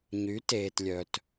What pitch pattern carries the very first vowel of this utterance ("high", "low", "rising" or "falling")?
rising